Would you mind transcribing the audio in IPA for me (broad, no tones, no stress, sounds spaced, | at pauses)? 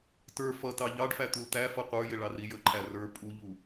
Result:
t ə˞ f ʌ t ɑ ʎ ɑ ɖ f æ t̪ u l t̪ æ f ʌ qʷ ə˞ j ɪ ɭ ɑ r i j ə ǃʰ æ r ə˞ pʼ u ʎ u